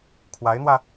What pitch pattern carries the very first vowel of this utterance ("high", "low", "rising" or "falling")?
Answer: rising